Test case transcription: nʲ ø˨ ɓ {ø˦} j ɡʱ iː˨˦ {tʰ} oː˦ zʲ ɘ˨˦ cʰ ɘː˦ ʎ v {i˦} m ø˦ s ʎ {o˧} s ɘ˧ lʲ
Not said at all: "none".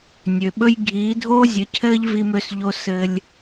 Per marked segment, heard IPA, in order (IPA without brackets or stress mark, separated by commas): ɵ˦, dʱ, i˦, o˦